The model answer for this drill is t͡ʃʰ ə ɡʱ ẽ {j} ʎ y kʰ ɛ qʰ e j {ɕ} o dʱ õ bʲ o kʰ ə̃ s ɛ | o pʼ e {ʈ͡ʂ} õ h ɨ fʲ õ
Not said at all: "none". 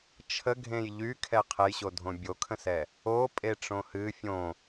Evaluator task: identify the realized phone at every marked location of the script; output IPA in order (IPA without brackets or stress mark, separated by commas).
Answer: j, ɕ, ʈ͡ʂ